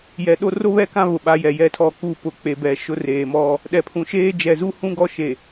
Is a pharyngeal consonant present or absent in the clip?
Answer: absent